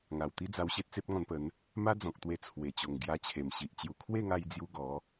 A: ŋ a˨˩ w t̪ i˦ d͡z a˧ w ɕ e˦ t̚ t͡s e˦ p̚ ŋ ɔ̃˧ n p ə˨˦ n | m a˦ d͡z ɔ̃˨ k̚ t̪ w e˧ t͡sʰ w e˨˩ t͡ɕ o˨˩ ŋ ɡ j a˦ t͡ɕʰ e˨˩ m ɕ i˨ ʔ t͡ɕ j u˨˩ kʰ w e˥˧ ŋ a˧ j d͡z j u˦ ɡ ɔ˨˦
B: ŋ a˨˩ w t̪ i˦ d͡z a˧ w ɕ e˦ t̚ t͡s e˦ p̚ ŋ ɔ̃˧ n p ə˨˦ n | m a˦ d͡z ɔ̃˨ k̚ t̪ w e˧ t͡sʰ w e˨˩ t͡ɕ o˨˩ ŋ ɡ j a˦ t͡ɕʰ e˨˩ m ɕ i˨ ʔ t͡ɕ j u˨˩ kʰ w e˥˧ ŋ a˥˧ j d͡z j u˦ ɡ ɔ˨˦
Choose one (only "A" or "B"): A